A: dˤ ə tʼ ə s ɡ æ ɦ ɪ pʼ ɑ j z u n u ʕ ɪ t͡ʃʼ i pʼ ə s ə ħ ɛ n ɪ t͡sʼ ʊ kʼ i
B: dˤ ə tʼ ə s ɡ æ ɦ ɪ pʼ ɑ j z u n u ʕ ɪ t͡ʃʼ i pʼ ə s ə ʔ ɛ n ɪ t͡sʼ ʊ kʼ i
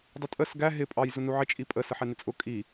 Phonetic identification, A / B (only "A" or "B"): A